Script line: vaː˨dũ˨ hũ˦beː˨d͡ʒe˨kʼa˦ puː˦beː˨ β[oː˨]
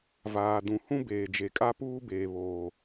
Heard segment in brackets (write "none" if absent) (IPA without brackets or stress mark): oː˨